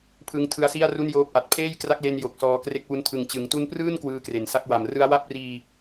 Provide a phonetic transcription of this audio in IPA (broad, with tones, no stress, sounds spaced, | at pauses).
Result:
pʰ ɯ˦˥ ŋ tʰ ɯ˦˥ a̯ s i˥˩ a̯ r u˥˩ n j oː˦˥ p̚ ʔ a˨˩ t̚ pʰ eː˥˩ j k r a˦˥ k̚ l e˧ n j o˨˩ k̚ s ɔː˧ k r e˦˥ k̚ w u˦˥ n tʰ ɯ˨˩ ŋ t͡ɕ ɯ˩˦ ŋ t u˦˥ n p r ɯː˥˩ n k w ɯː˦˥ k r e˨˩ n s a˦˥ k̚ w a˨˩ m r ɯ˦˥ a̯ w a˥˩ p̚ r iː˧